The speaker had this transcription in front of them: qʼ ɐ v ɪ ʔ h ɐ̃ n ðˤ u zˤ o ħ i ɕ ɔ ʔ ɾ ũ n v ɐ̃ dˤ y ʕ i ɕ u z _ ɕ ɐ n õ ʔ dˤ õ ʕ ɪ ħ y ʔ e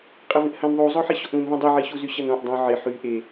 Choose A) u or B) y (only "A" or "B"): B